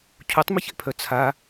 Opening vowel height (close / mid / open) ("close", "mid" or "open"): close